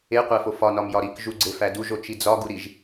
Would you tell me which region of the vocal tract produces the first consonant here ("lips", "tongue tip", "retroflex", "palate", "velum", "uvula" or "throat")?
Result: uvula